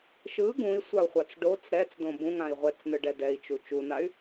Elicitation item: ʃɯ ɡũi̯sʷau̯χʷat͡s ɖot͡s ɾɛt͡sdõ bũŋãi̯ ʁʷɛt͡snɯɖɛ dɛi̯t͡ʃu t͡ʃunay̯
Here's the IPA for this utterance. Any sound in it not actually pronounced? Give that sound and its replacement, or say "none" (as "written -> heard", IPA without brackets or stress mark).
none